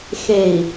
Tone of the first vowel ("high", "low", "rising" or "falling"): low